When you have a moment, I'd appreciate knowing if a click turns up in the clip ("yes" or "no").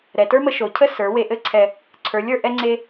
yes